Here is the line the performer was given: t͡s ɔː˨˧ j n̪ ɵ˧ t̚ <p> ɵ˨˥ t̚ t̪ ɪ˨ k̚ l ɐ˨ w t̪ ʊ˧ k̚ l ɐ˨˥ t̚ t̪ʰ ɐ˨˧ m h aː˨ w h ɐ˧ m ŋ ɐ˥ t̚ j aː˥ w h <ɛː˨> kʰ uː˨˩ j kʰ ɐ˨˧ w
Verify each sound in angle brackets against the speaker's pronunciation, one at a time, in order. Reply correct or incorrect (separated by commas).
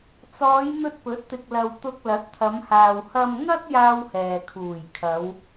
correct, correct